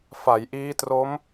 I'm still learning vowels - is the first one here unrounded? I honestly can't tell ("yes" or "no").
yes